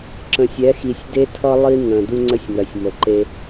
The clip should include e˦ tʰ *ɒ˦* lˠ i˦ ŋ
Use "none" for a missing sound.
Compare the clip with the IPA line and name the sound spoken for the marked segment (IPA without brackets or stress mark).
ʌ˦